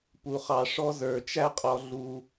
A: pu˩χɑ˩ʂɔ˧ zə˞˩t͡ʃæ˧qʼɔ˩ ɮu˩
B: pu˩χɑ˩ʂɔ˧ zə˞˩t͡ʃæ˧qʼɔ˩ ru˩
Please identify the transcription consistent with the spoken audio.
A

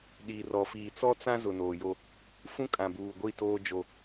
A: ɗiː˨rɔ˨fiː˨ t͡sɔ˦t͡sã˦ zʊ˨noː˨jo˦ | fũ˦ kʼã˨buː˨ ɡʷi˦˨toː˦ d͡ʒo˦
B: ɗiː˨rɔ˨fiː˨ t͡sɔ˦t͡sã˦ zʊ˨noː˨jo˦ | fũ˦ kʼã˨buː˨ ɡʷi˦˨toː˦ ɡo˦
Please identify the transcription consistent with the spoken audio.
A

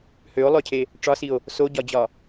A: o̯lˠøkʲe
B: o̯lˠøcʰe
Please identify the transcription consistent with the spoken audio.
B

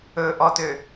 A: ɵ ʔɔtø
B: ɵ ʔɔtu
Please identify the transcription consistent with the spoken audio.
A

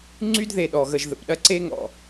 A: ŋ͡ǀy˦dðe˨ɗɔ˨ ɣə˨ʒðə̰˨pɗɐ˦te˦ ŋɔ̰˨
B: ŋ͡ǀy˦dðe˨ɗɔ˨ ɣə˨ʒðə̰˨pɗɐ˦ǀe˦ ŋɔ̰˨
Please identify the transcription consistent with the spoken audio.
B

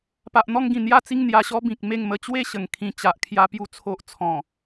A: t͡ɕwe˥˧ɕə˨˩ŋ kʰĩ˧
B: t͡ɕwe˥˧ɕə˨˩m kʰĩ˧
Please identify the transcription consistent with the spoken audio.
A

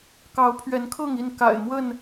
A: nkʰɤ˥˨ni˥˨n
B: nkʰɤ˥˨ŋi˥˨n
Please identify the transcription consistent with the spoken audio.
B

